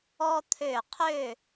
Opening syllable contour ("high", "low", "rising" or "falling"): high